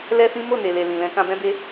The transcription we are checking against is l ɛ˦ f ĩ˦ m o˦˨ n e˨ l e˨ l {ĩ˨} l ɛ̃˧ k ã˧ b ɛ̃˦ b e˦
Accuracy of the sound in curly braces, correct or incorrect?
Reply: correct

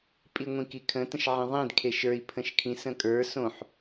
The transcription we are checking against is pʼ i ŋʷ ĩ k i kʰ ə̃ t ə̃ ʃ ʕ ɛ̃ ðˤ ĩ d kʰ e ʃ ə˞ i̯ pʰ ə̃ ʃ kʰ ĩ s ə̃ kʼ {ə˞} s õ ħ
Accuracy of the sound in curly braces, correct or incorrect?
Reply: correct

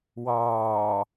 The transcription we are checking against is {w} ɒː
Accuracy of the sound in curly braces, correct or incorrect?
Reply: correct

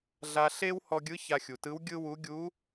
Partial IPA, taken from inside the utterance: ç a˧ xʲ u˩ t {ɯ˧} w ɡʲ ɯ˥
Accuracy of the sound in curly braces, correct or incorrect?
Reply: incorrect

